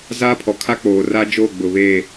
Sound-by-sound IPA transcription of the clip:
z aː˦ pʰ ɔ˨ kʰ a˦ k͡p oː˨ r a˦ d͡ʒ oː˦˨ ɡ͡b ʊ˨ β eː˦˨

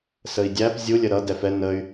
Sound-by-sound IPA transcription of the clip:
s ə i̯ dʲ æ p zʲ u lʲ ə ɾ ʌ d ɛ f ɛ n ə y̯

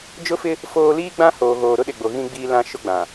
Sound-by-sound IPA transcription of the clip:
d͡ʒ ʊ˦ f ɪ˦ | f oː˦ l iː˦ ɡ͡b ã˦ h oː˨ ɣ oː˨ ɾ ʊ˦ ɗ ɪ˨ ɡ͡b o˨ ɣ ĩ˦ ɡ͡b iː˦ l ã˦ ʃ ʊ˦ ɡ͡b ã˨

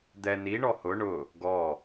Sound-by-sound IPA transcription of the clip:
d̪ ɛ n i ɳ ɔ h ʊ ɳ ʊ | ɡ ɔ

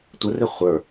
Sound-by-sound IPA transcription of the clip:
tʷ ə r e χʷ ə˞

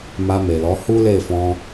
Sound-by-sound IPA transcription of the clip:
m a˧ m e˨ l ɔ˨˦ h u˦ l e˦˨ f ɔ̃˧

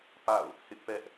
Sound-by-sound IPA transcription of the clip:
p a̰˦˨ ʊ̯ | h ɪ˦ ʔ p ɛ˦ ʔ

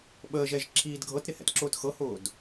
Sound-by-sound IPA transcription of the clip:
ɓ əː ʒ ɛ ʒ ǁʰ iː d ɡʱ ɤ t ɾ ɪ h ɛ̰ t ǁ ʊː t x ɤ h ʊː d

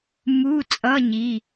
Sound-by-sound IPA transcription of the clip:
m u˧˥˧ t͡sʼ ʌ˧˥˧ ɲ i˩˧˩

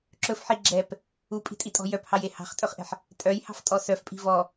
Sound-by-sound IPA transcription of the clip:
ǁ ɵ f ħ i ɡ͡ǁ ɛ p | u pʼ i̤ tʼ i tʼ ɔ̤ j œ p h ɑ j e h ɑ̤ χ tʼ ɵ χ ʔ ɛ̤ ħ | tʼ œ j h ɑ̤ f tʼ ɔ s œ f pʼ i̤ v ɔ

